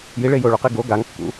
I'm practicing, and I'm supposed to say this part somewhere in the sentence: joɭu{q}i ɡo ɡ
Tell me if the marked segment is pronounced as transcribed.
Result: yes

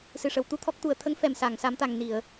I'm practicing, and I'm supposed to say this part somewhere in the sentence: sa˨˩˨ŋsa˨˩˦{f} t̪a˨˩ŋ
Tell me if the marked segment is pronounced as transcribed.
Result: no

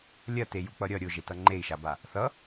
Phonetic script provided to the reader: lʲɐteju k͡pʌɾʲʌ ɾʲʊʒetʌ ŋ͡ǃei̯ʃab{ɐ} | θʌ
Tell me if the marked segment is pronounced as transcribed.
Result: no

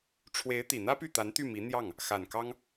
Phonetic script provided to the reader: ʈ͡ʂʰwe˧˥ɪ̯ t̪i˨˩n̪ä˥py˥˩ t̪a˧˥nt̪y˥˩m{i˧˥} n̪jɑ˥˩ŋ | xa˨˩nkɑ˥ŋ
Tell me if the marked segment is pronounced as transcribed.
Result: yes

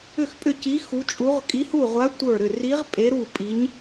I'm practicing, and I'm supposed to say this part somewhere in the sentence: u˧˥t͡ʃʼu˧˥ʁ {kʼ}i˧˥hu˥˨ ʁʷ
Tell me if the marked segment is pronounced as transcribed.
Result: yes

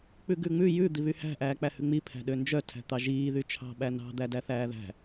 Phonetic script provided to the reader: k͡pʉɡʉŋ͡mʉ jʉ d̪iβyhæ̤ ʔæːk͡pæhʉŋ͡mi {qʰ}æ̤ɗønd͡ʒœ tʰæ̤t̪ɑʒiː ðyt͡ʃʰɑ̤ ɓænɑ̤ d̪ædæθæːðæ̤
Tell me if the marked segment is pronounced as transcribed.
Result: no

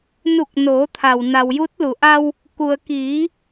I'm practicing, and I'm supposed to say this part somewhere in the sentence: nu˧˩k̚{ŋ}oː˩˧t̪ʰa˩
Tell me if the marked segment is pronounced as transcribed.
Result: no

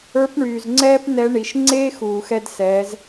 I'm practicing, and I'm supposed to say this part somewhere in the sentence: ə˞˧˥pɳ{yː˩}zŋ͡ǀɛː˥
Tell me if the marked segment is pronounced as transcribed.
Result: yes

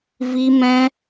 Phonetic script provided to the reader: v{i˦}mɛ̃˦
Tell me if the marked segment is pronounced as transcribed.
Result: yes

